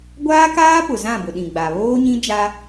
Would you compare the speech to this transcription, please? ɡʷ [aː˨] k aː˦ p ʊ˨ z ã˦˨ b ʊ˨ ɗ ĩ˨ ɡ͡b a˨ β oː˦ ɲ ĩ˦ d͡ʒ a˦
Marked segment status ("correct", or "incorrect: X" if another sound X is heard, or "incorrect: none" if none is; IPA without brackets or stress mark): incorrect: aː˦